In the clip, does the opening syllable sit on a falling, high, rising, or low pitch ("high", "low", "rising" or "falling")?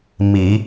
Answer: low